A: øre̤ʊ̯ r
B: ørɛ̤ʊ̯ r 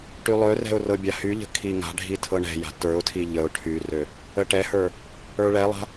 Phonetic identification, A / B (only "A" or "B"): B